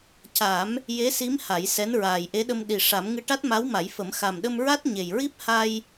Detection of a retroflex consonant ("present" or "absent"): present